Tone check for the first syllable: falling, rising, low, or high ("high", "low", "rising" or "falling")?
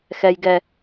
low